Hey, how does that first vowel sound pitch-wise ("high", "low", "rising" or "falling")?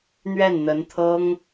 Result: falling